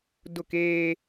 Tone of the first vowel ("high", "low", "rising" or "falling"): falling